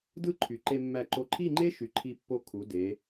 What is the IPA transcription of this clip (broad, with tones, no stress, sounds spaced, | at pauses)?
d ɯ˥˧ ǃʰ y˩˧ ǃ e˧ mː æ˧˩ ǃ o˧˩ ǃʰ i˥˧ ŋ͡ǃ e˥ ʃ y˩˧ ǃʰ i˧ pː o˧ kʰ u˩˧ d e˩˧